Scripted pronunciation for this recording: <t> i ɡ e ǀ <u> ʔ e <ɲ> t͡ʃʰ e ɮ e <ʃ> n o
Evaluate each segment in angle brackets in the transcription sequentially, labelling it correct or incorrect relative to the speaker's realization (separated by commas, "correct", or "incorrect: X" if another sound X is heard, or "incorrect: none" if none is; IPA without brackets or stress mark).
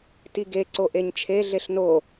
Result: correct, incorrect: o, correct, incorrect: ɬ